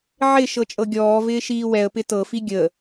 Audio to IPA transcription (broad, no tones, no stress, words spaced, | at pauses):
ʕɪ ʃɤt͡ʃʼɤɡʲɔːvɪː ʃiːwɛə̯pɪ tɤfi ɡʲə